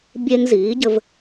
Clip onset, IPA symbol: bʲ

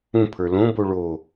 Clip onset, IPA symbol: ũ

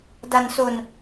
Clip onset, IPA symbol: d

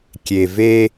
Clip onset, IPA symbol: kʲ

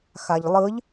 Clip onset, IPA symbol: x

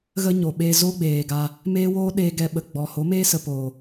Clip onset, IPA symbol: ɣ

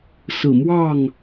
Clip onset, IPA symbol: s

